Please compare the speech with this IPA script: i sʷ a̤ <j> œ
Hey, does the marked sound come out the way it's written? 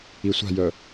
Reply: yes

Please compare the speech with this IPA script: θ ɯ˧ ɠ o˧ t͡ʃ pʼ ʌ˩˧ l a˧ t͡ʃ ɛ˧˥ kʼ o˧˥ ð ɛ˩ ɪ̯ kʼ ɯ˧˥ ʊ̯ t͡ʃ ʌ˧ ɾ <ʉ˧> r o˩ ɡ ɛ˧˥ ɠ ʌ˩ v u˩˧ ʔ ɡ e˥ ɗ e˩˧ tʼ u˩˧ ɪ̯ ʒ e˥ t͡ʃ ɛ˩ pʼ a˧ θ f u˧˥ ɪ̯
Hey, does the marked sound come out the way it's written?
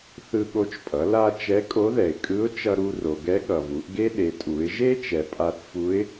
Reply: no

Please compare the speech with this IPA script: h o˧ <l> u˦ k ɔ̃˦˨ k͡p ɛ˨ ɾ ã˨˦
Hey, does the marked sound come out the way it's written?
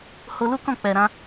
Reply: yes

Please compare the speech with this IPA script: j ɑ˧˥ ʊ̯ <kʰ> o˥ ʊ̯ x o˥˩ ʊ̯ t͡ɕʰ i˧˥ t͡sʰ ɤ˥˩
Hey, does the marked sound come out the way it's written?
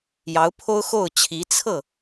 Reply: no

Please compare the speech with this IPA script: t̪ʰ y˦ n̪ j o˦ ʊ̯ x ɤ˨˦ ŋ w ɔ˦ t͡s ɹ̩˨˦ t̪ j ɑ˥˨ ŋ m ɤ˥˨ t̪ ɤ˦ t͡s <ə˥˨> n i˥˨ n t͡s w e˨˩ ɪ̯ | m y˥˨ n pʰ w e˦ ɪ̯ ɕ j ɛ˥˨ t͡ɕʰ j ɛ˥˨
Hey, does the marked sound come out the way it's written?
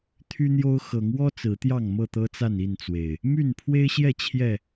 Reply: no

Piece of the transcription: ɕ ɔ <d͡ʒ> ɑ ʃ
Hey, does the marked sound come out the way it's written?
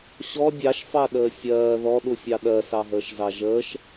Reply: no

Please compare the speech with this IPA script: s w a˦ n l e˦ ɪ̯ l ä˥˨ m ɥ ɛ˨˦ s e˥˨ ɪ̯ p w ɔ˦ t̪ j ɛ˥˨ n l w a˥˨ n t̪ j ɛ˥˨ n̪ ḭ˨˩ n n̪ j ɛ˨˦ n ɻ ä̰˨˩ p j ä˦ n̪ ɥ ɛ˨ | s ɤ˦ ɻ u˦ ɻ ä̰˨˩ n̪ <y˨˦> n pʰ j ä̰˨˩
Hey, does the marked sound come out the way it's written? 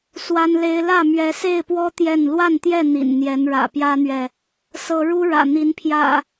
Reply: no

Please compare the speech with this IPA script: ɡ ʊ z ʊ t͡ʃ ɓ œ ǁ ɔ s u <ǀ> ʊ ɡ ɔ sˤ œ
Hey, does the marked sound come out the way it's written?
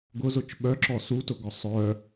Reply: no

